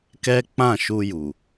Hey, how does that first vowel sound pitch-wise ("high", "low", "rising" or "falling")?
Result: high